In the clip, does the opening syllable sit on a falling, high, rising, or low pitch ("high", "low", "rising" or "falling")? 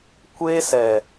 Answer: high